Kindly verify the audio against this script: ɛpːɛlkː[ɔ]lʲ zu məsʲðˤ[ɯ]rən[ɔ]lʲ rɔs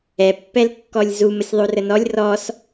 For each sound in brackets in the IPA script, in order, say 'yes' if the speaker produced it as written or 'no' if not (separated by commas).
yes, no, yes